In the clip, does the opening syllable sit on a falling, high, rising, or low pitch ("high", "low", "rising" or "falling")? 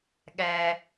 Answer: low